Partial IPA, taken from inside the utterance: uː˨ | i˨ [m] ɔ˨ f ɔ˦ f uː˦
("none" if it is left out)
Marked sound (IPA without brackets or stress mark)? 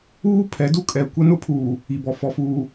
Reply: b